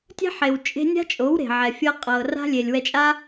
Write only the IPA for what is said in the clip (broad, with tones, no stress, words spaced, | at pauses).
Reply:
tʲɛ̤˦ħe˨w t͡ʃʼe̤˦ nʲa̤˦t͡ʃʼo˨˦w ɾe̤˨ʕɛ˨fʲɤ˦ qʼɤ˨ra̤˦ lʲe˨lʲwɛ˧t͡ʃʼa˦